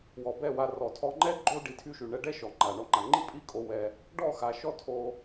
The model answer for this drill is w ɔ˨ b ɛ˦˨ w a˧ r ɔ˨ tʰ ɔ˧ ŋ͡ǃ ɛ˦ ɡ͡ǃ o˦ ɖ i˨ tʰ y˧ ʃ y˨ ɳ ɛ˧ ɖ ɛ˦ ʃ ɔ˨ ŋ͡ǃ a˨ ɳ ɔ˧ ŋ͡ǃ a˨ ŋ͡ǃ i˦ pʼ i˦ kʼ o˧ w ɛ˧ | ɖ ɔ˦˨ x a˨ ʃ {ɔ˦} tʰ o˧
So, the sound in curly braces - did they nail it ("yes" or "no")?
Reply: yes